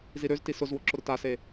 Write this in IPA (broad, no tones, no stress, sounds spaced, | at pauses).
z i ɾ ø z t i s ʊ z w ʊ ǁ ʊ ɾ ʊ t a s e